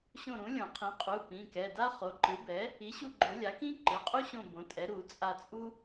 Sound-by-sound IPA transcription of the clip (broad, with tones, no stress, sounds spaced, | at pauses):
ɕ õ˦˨ ɾ ũ˩˥ lʲ õ˨˩˦ qʰ ĩ˩˥ qʼ u˩˧˩ p ĩ˩˧˩ k ɛ˩˧˩ d a˥ χ o˩˥ ǃ ɯ˩˥ b ɛ˩˥ | i˩˥ ɕ u˦˨ ɡ͡ǃ o˨˩˦ lʲ a˩˥ k ĩ˥ ǃ ɯ˩˧˩ qʼ u˥ ɕ õ˦˨ b õ˩˥ tʼ ɛ˩˥ ɾ u˨˩˦ t͡sʼ a˦˨ t͡sʼ u˥